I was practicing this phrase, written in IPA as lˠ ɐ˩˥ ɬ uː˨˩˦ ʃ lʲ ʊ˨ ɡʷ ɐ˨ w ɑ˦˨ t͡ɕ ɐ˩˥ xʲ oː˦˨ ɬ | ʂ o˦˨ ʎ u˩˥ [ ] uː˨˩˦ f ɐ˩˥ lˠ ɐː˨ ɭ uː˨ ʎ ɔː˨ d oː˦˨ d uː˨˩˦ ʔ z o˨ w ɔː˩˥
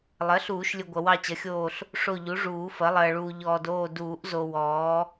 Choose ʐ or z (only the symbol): ʐ